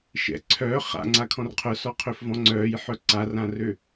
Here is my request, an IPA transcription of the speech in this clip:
ʃɛ̰ ǀʰœː χa̰ŋ͡ǀakʰɔ̃r qʰœsɔqʰøfvɔ̃ ŋ͡ǀœːjħœ ǀarãrø

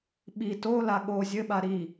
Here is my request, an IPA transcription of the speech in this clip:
ɓi tola ɠo zʲɘɓa ɾi

